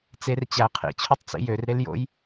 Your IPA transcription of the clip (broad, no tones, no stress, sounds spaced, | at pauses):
t͡s e r t͡ɕ æ qʰ ḭ t͡ɕʰ u tˤ t͡s ḭ j ø r ɾ e l j o̰ j